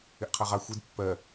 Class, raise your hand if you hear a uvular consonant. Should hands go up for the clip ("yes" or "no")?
yes